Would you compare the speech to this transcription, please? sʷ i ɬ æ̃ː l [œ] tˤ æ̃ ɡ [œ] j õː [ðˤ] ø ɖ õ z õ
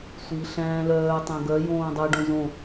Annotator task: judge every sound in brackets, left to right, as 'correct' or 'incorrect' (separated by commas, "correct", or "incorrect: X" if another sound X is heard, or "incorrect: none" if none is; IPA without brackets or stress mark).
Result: incorrect: œː, correct, incorrect: dˤ